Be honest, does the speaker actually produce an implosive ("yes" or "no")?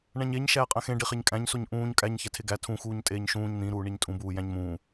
no